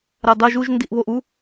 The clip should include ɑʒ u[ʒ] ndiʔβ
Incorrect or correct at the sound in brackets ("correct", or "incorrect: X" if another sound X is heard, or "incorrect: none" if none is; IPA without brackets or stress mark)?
correct